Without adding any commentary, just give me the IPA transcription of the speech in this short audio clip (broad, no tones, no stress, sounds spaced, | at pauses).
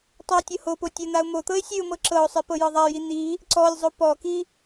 tˤ ɤ ɪ̯ tʲ ɤ h o p o tʲ ə n̪ a ʊ̯ m o t̪ ɤ ɪ̯ sʲ ʉ ʊ̯ m ɤ ǁ ɤ ʊ̯ sˤ i p ɤ j ɤ ðˤ a j i n̪ i | ǀ ɔ lʲ zˤ o p ɔ k i